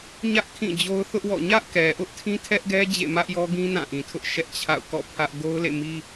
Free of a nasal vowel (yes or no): no